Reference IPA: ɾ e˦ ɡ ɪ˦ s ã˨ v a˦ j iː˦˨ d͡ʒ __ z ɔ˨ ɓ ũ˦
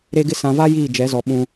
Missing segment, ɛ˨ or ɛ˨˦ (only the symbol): ɛ˨˦